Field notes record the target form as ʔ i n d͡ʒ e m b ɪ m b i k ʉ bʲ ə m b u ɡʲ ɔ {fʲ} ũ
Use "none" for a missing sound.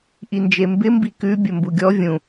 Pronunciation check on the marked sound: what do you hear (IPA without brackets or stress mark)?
vʲ